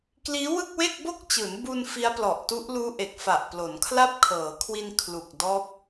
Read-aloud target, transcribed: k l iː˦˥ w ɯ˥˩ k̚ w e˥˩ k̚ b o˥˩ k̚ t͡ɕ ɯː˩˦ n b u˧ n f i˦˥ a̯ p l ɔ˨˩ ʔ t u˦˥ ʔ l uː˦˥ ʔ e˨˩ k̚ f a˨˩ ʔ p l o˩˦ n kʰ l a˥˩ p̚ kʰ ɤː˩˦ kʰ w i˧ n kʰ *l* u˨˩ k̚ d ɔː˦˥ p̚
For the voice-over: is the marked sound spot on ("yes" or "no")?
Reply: yes